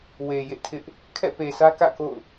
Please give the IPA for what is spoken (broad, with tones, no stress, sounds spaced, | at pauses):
w e˨ j ḛ˦˨ tʰ ɪ˦ ʔ | kʰ ɛ̰˦˨ p e˨ s ä˦ k ä̰˦˨ k o̰˦˨ ʊ̯